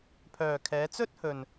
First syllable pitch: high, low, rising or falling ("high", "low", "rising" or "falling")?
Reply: low